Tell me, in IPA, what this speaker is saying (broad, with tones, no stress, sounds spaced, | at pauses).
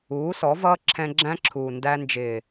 uː˨˦ s ɔ˨˦ v ʌː˦ ǁʰ ɛ̃˧ ɡ͡ǁ æ̃˦ ǁʰ uː˨ n d æ˧ n d͡ʒ ɪː˨